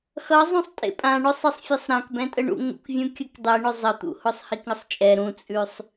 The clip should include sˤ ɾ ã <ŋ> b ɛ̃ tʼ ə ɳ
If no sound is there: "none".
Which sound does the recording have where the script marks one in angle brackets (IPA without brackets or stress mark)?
k